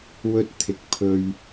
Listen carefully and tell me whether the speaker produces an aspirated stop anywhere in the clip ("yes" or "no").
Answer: yes